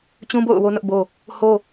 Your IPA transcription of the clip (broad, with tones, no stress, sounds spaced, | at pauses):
t͡ɕ ũ˦ b o̰˦˨ ʊ̯ w o˦ n ʊ˦ ʔ b o˦ | h o˦